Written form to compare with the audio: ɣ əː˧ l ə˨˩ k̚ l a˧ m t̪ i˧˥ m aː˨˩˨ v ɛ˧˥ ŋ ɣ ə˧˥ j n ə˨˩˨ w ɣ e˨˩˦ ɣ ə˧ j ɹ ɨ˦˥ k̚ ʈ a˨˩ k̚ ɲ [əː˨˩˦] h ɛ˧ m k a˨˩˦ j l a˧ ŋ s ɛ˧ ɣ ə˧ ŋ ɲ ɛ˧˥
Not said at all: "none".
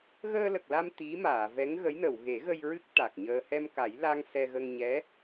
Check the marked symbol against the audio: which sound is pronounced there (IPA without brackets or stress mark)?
əː˧